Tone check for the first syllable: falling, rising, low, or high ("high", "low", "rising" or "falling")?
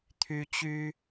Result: high